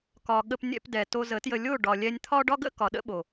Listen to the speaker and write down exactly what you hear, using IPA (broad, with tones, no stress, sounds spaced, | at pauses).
k ɒ˨ ɠ ə˧ p nʲ ɛ̰˧ p d ɛ˨ t o˧ z ə˨˦ t j ə˧ lʲ o˦˨ ɖ ɒ˨ lʲ ɛ˧ nʲ t̪ʰ ɒ˦ ɖ ɒ˦ ɡ ə̰˦ k ɒ˨ ɗ ə̰˦ ɓ o˨